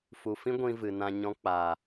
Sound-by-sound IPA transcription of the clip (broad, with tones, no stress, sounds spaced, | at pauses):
f u˨ f ĩ˦ ɡʷ ĩ˧ v ɨ˨ n ã˧ ɲ ɔ̃˧ k͡p a˨